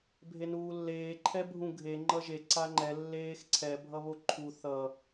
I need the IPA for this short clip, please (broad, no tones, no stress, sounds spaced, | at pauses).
bʱ e n uː lː eː ǃʰ ɛ bʱ ũ ɡʱ e ŋ͡ǃ ʌ ʒ e ǀ a ŋ͡ǃ ɛ lː eː x ǀʰ ɛ bʱ ʌ β o ǃʰ u θ ʌ